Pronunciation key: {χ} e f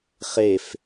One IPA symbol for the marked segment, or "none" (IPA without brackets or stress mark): χ